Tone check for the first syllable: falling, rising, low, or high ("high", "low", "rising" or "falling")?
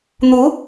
rising